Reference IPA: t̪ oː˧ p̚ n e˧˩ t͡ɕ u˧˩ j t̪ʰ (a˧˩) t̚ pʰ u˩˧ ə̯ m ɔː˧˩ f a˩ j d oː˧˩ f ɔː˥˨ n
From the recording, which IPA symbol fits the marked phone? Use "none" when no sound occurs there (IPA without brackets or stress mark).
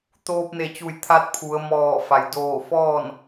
a˧˥